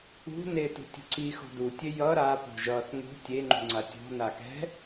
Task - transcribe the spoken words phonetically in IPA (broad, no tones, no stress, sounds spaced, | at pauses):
ṳ n e t ṳ tʲ ṳ ǀ i x o̤ d u tʲ e j ʌ ɾ a p o̤ ʒ ʌ θ ŋ ṳ tʲ e ŋ͡ǃ ṳ ŋ͡ǀ a tʲ o̤ n a k ɛ̤